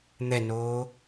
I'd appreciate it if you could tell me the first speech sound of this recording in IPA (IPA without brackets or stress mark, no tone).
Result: n̪